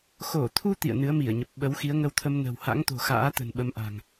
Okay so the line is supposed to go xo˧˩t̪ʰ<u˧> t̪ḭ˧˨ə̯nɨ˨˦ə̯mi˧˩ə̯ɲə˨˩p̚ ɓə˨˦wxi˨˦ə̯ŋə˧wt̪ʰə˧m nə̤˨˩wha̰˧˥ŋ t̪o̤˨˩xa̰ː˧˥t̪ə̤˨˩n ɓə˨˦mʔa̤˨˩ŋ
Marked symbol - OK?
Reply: yes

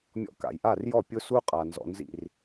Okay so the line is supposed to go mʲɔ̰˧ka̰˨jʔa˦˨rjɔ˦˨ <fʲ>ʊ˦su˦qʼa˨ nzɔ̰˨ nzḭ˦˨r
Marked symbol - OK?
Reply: no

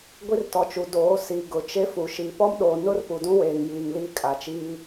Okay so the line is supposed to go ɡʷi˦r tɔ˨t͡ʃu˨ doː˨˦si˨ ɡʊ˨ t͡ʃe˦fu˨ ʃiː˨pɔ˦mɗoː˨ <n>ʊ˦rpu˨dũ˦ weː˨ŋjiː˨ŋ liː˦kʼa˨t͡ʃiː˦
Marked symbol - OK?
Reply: yes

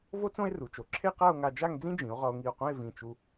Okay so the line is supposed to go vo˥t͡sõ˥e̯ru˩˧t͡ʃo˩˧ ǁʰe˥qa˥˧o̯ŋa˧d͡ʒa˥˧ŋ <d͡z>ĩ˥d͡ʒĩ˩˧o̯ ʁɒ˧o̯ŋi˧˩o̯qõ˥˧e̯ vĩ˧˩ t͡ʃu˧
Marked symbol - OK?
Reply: yes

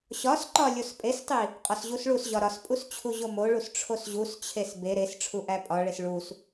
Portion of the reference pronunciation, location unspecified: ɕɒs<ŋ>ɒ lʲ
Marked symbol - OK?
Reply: no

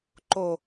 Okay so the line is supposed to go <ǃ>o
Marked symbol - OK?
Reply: yes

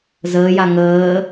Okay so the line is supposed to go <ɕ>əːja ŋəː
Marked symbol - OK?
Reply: no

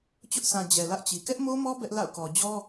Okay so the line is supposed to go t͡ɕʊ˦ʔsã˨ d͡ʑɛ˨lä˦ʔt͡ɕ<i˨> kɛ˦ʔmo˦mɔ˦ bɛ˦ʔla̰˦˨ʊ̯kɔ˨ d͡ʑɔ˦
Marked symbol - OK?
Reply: yes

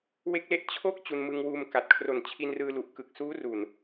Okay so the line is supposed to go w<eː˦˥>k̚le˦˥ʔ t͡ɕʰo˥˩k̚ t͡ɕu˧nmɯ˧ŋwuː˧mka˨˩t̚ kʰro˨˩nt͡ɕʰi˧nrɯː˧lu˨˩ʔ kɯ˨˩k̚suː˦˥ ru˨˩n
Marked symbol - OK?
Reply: no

